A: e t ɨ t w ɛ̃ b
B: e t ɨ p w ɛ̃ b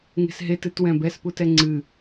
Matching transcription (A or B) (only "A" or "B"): A